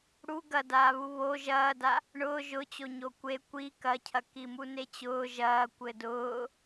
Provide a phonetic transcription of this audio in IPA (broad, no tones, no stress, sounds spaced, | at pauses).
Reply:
ɽ u ɡ ɐ d aː β u β o ʒ ɐː d a | ɳ ʊː ʒ ʊ t͡ɕ o ɲ o kʷ e kʷ i k ɐ cʰ ɐ k i m u n e t͡ɕ ʊː ʒ ɐː kʷ ɘ d ʊː